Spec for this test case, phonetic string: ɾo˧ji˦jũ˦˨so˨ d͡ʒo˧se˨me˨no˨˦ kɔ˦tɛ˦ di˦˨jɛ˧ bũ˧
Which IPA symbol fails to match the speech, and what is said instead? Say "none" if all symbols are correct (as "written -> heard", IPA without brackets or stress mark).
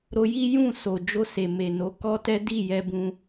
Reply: none